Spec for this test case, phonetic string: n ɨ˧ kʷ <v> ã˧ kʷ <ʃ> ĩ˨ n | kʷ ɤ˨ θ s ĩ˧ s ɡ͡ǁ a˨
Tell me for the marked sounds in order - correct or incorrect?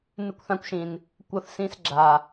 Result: incorrect: θ, correct

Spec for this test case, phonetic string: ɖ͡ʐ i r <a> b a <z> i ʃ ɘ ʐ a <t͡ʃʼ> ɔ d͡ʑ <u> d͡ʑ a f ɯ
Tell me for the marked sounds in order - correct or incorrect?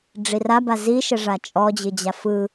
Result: correct, correct, correct, incorrect: ɯ

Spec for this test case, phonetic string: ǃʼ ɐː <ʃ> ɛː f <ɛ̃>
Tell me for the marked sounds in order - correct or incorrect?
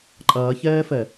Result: incorrect: ç, incorrect: ɛ

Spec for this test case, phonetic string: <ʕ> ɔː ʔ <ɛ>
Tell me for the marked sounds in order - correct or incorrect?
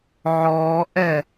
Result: correct, correct

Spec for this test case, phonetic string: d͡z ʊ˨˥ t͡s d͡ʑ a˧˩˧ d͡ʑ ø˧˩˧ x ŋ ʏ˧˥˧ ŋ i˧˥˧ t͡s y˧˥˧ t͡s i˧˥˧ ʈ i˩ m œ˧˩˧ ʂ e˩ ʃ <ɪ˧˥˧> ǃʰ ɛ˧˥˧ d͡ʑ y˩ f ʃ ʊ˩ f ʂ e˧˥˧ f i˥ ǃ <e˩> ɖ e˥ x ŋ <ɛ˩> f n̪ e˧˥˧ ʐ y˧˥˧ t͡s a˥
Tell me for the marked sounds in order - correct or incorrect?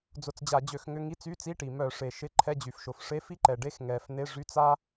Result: correct, incorrect: ɛ˩, correct

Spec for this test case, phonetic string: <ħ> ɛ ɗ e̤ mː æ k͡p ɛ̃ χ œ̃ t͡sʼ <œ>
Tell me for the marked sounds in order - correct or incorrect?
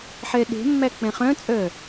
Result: correct, correct

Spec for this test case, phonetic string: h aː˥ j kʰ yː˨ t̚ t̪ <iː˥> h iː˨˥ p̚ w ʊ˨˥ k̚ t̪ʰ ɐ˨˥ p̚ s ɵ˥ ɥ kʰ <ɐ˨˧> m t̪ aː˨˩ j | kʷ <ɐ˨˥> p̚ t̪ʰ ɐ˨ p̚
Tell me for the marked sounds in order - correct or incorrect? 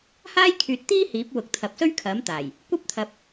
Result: correct, incorrect: ɐ˨˥, incorrect: ɐ˥

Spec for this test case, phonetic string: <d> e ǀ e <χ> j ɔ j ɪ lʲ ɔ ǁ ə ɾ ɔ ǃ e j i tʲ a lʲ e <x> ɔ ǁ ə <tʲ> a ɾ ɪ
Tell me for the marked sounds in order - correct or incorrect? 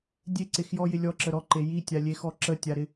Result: incorrect: dʲ, incorrect: x, correct, correct

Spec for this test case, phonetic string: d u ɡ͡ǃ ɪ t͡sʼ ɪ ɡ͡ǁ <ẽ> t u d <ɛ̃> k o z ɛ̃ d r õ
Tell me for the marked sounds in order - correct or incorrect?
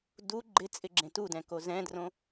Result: correct, correct

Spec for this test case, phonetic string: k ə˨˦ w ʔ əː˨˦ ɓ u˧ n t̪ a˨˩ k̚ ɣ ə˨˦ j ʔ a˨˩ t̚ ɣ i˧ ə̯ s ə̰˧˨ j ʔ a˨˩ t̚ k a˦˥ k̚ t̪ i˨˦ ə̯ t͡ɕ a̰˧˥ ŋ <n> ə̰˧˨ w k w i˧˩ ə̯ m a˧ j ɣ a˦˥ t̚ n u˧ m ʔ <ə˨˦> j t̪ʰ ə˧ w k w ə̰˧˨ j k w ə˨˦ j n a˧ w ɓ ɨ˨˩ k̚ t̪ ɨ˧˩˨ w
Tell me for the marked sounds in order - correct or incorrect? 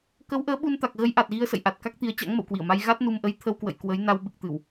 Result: incorrect: m, correct

